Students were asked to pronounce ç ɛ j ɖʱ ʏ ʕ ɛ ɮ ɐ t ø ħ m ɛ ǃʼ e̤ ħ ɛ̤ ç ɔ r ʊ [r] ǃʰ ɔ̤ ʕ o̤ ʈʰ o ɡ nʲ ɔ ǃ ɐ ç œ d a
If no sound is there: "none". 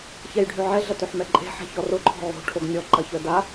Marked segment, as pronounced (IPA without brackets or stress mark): none